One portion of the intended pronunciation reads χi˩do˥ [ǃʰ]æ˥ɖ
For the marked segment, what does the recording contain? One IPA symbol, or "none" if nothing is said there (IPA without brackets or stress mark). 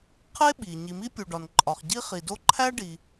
ǃʰ